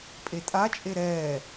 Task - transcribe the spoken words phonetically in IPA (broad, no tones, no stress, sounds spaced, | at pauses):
pʼ e tʼ a t͡ʃʼ e ɾ ɛː